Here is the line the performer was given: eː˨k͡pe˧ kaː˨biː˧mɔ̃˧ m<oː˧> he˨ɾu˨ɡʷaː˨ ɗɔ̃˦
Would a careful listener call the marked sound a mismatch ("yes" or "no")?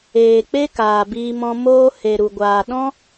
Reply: no